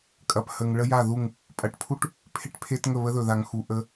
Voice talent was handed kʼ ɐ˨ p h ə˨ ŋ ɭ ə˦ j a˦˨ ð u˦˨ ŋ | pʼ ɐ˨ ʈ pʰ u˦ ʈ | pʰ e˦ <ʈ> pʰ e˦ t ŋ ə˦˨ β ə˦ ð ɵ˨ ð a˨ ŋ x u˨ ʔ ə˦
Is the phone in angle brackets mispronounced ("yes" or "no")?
no